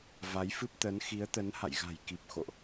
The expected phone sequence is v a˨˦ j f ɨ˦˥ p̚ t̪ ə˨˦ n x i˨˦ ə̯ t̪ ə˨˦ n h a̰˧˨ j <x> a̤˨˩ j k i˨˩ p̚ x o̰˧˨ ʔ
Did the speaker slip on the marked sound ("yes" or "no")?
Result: yes